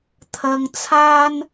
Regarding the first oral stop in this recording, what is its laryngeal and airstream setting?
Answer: aspirated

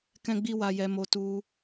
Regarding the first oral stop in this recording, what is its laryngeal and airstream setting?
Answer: plain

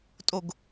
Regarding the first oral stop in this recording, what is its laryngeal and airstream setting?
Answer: ejective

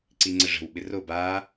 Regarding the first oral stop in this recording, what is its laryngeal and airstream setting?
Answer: click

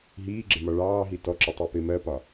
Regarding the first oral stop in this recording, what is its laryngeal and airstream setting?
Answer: click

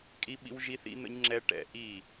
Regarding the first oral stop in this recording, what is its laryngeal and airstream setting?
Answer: ejective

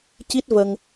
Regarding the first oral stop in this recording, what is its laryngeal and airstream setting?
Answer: plain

